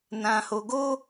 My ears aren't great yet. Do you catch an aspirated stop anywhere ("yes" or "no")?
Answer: no